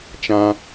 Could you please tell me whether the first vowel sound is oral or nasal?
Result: nasal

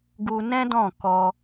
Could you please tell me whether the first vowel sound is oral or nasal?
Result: oral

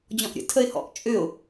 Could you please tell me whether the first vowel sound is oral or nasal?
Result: nasal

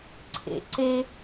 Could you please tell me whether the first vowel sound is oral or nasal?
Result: oral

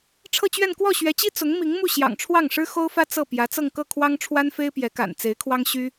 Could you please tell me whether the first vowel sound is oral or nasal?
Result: oral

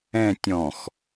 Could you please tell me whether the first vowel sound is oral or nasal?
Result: nasal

